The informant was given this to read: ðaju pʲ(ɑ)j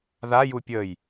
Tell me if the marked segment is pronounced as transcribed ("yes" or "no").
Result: no